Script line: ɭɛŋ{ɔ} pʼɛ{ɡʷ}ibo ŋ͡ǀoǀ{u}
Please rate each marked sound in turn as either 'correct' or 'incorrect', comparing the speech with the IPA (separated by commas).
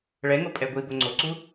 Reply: incorrect, correct, correct